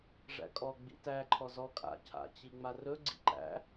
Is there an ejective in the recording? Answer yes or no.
yes